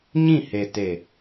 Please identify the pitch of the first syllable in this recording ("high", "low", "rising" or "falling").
falling